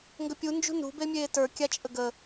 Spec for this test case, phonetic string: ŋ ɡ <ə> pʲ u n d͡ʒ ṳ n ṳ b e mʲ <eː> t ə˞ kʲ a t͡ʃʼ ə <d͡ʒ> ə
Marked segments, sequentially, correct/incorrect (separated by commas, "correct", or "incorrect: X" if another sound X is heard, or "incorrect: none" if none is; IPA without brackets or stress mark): correct, correct, incorrect: ɡ